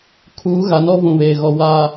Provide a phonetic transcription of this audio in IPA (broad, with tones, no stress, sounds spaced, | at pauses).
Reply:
kʰ uː˨˦ ɣ a˨˦ n ɔ˦ v ũ˨ β eː˨ ɣ ɔ˨ w a˨